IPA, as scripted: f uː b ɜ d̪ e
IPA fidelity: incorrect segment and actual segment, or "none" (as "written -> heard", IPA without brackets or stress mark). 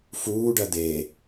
b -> ɖ